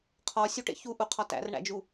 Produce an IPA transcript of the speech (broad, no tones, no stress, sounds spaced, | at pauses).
qʰ ɒ sʲ u ʈ ḛ ç u ʔ u qʰ ɒ t æ̰ r ɳ æ̰ d͡ʒ u